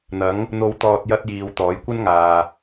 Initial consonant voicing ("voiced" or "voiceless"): voiced